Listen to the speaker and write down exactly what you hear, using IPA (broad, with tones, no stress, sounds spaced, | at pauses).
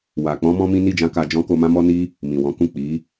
w a˨ k͡p ɔ̃˧ m ɔ̃˦ m ĩ˦ n i˦˨ d͡ʒ ã˧ k a˧ d͡ʒ ɔ̃˦ k o˧ m ã˦ m ɔ˦ n i˦ | m ĩ˨ w ɔ̃˨˦ k ũ˦˨ k͡p i˨˦